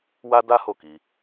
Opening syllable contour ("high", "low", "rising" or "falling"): high